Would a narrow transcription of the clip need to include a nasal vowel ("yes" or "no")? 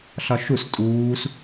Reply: no